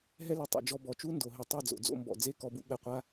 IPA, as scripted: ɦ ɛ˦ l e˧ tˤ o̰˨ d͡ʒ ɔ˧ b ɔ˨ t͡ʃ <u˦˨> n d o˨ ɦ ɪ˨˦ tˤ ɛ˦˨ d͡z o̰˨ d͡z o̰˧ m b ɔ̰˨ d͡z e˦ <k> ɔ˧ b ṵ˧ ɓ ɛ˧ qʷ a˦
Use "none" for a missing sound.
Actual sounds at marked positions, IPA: u˦, k

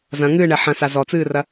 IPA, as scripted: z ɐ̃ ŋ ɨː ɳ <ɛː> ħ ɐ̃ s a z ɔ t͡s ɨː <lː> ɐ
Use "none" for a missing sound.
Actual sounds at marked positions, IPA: ɛ, r

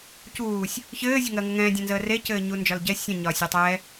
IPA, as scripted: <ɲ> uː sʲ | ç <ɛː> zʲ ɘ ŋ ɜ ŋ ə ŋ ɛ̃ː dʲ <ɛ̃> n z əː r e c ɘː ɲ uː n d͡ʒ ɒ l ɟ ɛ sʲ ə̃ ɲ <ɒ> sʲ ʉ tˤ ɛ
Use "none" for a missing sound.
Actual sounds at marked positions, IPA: c, ɘː, ɛ̃, ɒː

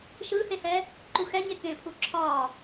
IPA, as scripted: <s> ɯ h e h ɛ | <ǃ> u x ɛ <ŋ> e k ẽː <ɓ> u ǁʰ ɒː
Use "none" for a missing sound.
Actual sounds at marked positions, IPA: ʃ, ǃ, ɲ, pʰ

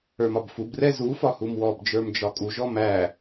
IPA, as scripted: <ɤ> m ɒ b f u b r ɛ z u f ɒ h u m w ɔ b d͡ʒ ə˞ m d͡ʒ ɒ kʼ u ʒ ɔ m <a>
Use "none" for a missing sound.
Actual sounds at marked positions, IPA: ə˞, æ

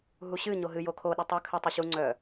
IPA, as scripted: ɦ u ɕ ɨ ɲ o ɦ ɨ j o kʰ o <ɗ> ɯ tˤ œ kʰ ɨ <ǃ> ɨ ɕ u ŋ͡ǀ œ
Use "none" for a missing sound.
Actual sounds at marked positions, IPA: ɗ, tˤ

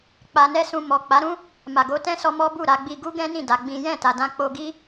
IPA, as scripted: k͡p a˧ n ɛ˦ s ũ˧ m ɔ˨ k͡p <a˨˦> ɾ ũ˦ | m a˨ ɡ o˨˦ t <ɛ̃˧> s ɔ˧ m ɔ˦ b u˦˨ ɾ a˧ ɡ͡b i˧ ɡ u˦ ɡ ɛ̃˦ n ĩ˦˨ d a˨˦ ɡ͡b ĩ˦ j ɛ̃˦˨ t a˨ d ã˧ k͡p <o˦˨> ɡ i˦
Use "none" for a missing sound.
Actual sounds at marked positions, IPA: a˨˦, ɛ̃˦, o˧

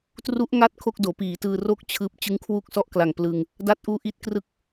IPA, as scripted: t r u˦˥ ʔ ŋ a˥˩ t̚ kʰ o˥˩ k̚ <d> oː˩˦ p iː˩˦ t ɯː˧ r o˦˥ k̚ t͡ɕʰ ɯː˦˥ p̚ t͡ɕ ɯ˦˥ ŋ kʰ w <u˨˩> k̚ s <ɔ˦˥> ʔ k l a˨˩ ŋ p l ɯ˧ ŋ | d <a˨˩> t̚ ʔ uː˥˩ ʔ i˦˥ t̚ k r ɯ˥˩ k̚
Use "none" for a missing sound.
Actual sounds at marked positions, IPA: d, u˥˩, ɔ˥˩, a˥˩

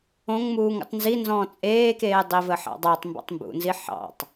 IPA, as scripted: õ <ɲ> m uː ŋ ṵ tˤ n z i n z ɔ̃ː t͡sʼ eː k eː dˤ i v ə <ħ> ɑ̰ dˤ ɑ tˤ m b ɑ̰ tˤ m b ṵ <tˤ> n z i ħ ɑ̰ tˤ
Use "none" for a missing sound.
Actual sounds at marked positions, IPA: ŋ, ħ, none

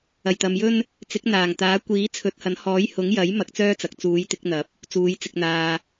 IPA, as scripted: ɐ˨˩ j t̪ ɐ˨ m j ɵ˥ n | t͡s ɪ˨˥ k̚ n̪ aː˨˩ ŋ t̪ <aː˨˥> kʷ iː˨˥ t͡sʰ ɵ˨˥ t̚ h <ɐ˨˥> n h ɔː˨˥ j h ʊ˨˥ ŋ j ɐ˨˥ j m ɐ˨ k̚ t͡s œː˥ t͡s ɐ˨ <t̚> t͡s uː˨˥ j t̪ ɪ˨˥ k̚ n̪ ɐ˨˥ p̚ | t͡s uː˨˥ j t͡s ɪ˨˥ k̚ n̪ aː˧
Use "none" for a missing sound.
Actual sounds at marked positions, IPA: aː˨˥, ɐ˨˥, k̚

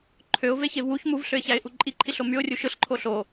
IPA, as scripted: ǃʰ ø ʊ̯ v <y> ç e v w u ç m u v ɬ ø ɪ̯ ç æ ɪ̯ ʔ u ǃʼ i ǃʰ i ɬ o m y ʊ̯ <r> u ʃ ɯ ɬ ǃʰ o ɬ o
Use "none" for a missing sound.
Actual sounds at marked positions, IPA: e, rʲ

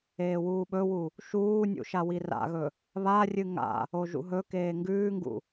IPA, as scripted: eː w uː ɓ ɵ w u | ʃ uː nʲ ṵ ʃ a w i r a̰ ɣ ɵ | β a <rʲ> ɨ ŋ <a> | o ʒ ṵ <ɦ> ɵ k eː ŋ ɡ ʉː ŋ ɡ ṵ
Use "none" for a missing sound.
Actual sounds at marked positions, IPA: rʲ, a̰, ɦ

